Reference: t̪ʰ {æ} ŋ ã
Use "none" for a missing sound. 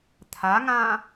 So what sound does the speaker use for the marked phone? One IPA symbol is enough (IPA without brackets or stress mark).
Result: a